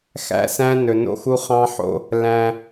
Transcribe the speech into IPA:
x æ̰˦ s æ̃˦ n ɵ˨ n o̰˦ x u˦ χ ɑ̃˦ ħ o̰˦ | l æ̃˦

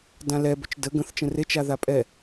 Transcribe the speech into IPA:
d ã l ɛ b ʏ t͡ʃ d ə ɡ ə̃ θ t͡ʃ ə̃ r e t͡ʃ a ð a pʼ ɛ

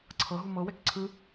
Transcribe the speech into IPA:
ǀʰ ɤ ɦ u m ɤ w ɛ k ǀʰ ɯ

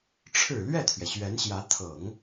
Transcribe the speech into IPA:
ʈ͡ʂʰ ɻ̩˨˩ l ɥ ɛ˥˩ t̪ʰ ɥ ɛ˩ ɕ ɥ ɛ˧˥ n ɕ j ä˧˥ t̪ʰ ɤ˨˩˦ ŋ

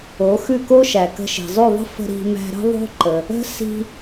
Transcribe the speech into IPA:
o˩˥ x ʉ˥˩ k o˥ ʃ æ˩ k ə̤˧ ʃ i̤˩ zˤ ʉ˥˩ ðˤ ə̤˥ f ə̤˧ ɾ i̤˧ m æ̤˧ ɾ ə̤˥ ðˤ o̤˥ ǃ ə˩ | ə̤˥ s i̤˧

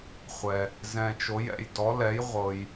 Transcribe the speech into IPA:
χʷ ɛ˨ | z ɛ̃˨ t͡ʃ o˨˦ j ɛ̰˨ j d ɔ˨˦ l ɛ˨˦ j ʁʷ ɤ˨ j

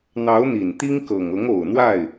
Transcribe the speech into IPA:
n̪ ɑ˧˥ ʊ̯ n̪ i˨˩ n t̪ i˥ ŋ k ɤ˨˩ ŋ ɤ˧˥ ŋ o˨˩ ʊ̯ n̪ w a˥˩ ɪ̯

